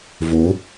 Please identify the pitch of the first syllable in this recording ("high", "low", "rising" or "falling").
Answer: rising